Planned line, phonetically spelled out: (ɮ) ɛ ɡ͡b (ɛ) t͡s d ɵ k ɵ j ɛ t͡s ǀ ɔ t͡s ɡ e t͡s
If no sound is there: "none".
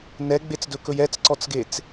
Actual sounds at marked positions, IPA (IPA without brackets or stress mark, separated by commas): n, e